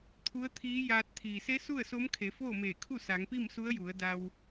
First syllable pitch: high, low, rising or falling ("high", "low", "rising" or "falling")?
rising